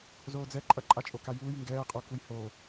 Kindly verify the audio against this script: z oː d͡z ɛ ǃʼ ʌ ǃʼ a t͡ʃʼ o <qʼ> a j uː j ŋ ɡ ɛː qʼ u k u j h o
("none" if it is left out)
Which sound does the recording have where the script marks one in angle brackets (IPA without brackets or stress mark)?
k